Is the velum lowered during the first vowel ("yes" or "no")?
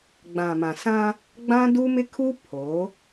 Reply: yes